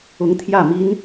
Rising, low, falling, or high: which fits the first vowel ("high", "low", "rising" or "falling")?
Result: rising